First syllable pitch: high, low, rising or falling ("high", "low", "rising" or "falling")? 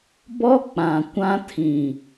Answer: high